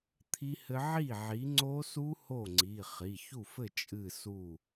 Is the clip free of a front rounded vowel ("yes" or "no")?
yes